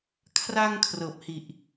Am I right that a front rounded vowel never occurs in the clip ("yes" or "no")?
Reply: yes